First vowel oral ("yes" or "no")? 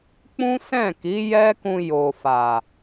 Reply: no